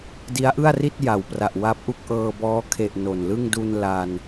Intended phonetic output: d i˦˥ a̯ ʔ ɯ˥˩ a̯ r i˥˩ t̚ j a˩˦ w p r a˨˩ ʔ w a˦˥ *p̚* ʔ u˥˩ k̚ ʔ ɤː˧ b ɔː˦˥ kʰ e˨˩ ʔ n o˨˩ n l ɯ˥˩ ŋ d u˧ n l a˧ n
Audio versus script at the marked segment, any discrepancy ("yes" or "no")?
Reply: no